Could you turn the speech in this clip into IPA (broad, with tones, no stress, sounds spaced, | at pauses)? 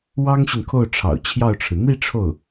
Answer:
w ɑ˥ ŋ ɕ y˨ n kʰ o˥˩ ʊ̯ ʈ͡ʂʰ ɑ̰˨˩ ʊ̯ t͡ɕʰ j ɑ˥˩ ʊ̯ ʈ͡ʂʰ ɻ̩˩ n̪ i˥˧ ʈ͡ʂʰ o˥˩ ʊ̯